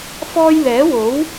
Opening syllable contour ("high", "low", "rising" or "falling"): high